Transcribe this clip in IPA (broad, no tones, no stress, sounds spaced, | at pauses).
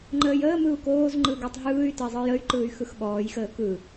ŋ͡ǃ əː j əː m ɯ u̯ k oː z ŋ͡ǃ ɯ ɡ o tˤ ɦ ɯː y̯ t ə i̯ zˤ ɯ j ə y̯ ǃ ɯː y̯ x ɯ x ɓ ɔː j x əː k ɯ